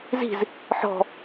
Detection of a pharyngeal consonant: present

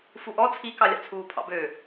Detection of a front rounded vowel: present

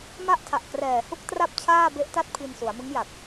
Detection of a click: absent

